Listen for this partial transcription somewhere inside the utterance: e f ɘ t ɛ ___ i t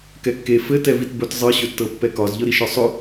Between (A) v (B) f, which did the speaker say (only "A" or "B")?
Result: A